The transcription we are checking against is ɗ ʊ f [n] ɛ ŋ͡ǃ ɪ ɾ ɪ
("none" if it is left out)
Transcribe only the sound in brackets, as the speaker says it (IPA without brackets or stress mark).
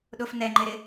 n